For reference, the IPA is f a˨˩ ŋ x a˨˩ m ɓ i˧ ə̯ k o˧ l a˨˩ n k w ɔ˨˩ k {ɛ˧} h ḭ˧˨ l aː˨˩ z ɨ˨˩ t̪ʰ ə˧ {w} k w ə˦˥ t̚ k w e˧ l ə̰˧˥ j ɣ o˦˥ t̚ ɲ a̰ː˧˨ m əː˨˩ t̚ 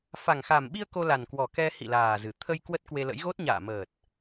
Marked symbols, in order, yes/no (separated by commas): yes, no